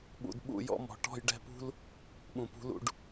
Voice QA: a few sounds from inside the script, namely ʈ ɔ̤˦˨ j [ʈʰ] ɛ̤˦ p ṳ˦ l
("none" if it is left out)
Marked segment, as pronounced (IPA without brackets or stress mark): ɖ